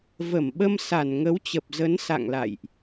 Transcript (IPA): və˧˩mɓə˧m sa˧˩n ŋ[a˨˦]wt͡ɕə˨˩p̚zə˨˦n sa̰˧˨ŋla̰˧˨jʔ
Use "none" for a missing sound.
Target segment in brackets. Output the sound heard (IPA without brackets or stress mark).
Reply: ə˨˦